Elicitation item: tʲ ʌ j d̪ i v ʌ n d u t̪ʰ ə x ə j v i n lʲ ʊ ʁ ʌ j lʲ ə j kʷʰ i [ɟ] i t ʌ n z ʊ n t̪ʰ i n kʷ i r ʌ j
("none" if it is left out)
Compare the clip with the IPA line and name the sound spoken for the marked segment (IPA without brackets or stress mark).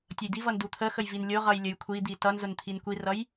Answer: d̪